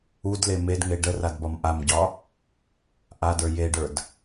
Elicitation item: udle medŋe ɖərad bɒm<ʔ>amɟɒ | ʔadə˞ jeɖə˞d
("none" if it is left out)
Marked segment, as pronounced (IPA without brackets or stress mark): ʔ